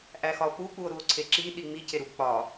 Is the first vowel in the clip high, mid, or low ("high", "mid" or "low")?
low